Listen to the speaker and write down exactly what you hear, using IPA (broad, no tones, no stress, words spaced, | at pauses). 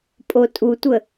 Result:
pʼotʼutʷə